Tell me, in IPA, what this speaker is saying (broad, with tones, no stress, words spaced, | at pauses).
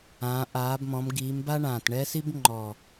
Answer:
ãː˨˦ʔaː˨˦bmɔ̃˨˦m ɡiː˨˦mba˥ ɳãː˨˩tɳɛ˥si˥b ŋ͡ǃɔ˨˩